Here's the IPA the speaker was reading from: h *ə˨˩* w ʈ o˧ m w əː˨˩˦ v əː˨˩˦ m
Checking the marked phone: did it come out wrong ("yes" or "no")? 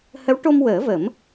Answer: yes